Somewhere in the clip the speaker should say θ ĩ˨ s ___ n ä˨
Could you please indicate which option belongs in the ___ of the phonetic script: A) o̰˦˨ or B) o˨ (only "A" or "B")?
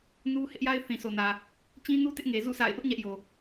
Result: B